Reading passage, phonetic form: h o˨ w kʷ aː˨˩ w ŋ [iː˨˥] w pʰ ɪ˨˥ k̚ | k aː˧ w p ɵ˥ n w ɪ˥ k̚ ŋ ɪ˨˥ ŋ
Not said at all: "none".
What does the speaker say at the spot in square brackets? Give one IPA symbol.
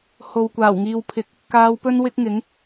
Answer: iː˨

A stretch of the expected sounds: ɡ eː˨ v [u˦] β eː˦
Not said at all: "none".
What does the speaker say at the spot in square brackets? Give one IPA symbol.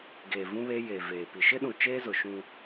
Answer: ũ˦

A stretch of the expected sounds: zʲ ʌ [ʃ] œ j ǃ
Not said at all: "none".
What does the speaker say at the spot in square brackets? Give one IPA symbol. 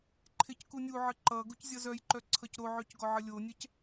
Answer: z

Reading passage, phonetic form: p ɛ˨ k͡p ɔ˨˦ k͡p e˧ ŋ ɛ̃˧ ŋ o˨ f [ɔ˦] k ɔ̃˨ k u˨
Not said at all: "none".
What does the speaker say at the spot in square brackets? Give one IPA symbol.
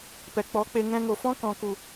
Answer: ɔ̃˦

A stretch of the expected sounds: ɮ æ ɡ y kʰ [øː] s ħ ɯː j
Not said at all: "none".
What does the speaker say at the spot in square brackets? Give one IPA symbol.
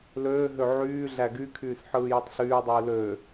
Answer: yː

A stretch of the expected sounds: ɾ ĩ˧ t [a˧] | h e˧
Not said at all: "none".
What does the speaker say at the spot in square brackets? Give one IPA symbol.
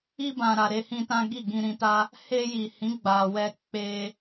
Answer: a˦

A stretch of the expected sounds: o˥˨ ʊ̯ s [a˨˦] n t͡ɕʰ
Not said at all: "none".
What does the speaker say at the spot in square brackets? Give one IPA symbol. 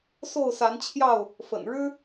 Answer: a˨˦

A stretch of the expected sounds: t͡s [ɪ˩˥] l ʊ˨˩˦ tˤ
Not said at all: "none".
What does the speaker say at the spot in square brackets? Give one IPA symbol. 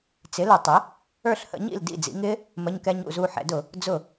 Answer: ɪ˩˥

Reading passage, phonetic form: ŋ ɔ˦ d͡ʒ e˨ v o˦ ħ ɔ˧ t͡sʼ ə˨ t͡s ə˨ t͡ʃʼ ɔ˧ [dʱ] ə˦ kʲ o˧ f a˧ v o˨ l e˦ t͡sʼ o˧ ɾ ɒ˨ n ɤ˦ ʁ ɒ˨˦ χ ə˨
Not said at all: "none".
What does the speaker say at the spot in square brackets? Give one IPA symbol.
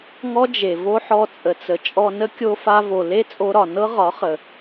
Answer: n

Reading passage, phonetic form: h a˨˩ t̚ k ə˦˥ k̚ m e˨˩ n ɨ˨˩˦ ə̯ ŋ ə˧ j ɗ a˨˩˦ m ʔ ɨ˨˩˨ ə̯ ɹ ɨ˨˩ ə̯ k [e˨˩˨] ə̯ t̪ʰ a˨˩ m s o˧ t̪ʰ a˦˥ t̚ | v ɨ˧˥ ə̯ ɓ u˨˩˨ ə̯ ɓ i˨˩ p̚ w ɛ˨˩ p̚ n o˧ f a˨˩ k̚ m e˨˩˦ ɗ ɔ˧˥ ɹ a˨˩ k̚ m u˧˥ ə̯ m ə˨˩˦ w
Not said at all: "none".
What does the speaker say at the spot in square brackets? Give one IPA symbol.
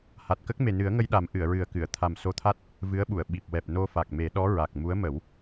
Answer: ɨ˨˩˨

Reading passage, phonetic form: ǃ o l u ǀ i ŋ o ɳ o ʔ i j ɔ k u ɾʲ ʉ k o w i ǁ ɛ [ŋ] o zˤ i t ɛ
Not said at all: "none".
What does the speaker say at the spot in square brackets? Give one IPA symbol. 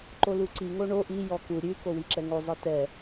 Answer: ŋ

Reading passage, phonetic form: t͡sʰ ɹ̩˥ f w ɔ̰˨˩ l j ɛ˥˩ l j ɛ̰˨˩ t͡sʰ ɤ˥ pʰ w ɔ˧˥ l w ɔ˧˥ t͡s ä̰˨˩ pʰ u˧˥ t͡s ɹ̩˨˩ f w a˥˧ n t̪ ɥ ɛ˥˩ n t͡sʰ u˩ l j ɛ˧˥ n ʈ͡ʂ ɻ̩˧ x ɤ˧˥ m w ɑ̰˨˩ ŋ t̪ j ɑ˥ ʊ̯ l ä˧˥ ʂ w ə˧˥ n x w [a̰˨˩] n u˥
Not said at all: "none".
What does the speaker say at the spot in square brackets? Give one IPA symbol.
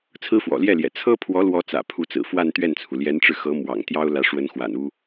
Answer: a̰˨˩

